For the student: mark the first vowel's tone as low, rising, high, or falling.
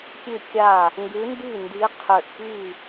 falling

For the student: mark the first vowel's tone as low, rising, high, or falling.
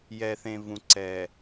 low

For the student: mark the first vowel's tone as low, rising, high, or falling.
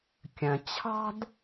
low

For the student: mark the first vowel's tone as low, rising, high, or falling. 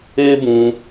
high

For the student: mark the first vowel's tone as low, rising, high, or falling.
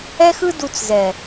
high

